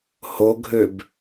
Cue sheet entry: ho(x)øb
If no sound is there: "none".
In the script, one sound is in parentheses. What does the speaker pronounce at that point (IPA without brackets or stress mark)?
ɡʱ